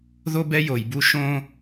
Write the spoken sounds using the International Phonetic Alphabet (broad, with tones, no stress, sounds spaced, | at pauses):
ð o˦ b ɛ˦ j o˨ j b u˦ ʃ õ˦